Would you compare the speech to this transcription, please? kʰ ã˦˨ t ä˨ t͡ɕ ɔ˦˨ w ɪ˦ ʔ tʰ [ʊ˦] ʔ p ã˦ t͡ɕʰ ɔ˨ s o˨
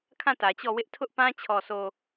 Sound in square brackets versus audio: correct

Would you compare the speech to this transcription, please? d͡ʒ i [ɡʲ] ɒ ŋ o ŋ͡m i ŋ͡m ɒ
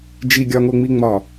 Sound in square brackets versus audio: correct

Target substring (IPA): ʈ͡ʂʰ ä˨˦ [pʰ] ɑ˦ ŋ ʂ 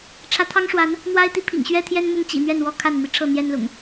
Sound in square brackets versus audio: incorrect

